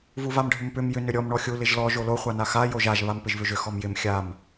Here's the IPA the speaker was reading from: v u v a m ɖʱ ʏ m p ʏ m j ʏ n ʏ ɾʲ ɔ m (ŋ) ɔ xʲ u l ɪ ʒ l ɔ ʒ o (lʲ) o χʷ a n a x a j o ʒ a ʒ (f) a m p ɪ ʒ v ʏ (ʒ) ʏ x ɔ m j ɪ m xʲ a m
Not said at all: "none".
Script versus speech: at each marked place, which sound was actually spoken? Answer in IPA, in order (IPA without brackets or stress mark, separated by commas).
ɳ, l, β, ʒ